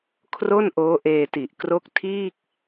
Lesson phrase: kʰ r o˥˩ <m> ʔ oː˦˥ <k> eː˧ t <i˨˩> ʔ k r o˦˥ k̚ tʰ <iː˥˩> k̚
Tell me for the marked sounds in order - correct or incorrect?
incorrect: n, incorrect: ʔ, correct, correct

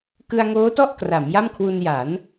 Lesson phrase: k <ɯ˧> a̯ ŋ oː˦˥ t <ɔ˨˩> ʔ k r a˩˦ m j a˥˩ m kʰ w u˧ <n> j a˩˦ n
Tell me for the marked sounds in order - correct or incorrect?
correct, incorrect: ɔ˥˩, correct

